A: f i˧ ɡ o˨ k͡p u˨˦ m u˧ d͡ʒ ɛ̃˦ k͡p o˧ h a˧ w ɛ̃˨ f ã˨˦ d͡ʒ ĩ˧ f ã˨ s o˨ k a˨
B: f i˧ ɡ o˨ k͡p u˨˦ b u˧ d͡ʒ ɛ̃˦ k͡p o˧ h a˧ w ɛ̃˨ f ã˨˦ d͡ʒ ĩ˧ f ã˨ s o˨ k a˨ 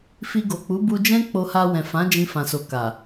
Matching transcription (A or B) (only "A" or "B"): B